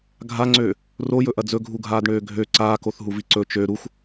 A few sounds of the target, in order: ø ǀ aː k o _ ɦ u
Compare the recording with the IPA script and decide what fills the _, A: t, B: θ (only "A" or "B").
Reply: B